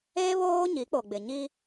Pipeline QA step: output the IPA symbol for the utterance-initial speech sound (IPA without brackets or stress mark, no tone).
e